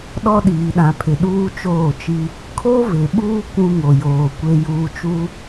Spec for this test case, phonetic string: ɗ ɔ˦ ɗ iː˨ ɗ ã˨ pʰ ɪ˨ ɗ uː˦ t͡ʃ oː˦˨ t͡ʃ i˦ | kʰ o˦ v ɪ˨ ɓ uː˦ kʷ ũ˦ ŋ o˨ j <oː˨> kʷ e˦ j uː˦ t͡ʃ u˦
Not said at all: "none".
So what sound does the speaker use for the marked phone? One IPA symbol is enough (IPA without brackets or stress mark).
oː˨